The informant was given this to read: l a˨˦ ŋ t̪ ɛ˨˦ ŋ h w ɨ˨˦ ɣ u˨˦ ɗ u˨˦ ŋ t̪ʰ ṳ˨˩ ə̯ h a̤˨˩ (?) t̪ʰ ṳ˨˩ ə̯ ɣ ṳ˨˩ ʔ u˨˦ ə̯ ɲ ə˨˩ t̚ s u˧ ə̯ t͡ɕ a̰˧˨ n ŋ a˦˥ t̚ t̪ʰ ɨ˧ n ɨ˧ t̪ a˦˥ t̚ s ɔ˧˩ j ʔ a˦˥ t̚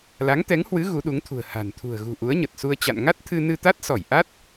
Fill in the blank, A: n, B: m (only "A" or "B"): A